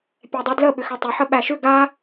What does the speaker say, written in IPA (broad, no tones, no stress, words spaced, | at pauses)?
pʲɛdˤudlə ɓʏxɛtˤʏ ħəɓæʃʏ ɡa